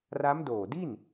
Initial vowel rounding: unrounded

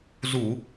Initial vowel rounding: rounded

